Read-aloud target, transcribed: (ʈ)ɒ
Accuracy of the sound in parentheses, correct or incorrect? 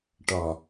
correct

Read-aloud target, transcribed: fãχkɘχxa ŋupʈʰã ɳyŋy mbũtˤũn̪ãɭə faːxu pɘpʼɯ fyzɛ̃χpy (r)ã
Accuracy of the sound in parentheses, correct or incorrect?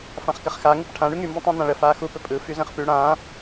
incorrect: ɽ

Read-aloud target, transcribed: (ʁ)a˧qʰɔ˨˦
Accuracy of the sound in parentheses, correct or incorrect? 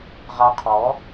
correct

